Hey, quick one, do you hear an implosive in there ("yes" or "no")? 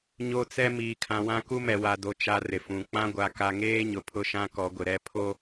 no